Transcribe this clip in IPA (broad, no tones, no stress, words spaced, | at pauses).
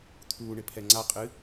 t̪ʰuːɳɪ pʰɛŋ͡ǀa qʼɨ